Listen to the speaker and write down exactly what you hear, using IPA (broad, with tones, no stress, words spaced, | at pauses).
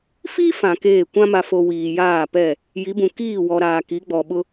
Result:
fi˦ fã˨keː˦˨ kʷã˦ma˨fo˨ wiː˨jaː˦˨pɛ˦˨ | ji˨˦bũ˨ kiː˦˨wɔ˨ɾaː˨ ki˨˦ɡ͡bɔ˨ɓʊ˦